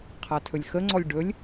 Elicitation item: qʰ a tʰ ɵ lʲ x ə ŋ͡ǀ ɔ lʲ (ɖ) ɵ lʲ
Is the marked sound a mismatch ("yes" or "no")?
no